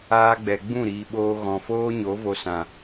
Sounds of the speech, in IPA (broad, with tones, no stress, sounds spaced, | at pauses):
aː˦ ɡ͡b ɛ˨ ɡ͡b ũ˦˨ ɾ iː˨ ɓ oː˧ ɣ ɔ̃˨ f oː˦ ɲ o˨˦ v o˧ s ã˨